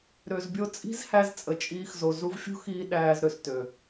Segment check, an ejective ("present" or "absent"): present